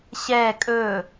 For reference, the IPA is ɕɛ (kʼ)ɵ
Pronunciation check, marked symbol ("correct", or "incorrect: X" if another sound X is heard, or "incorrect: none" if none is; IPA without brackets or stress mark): correct